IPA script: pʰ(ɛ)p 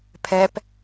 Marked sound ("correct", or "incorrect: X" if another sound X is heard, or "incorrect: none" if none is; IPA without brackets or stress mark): correct